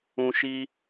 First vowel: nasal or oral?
nasal